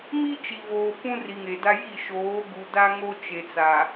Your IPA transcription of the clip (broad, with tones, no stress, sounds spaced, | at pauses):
m i˦ t͡ʃ i˨ β oː˨ p ũ˦ r i˨ ŋ e˨ d a˦ j i˦˨ ʃ oː˨˦ ɡ u˨ d a˦ ŋ o˦ t͡ʃ e˨ t͡s a˨